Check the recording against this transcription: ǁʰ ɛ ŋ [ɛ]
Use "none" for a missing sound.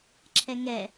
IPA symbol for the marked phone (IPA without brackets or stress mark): ɛ